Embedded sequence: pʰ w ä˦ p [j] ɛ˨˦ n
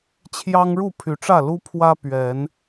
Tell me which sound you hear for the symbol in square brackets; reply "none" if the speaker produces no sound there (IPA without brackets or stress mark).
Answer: ɥ